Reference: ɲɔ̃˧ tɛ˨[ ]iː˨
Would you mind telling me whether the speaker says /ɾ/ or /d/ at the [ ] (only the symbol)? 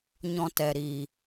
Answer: ɾ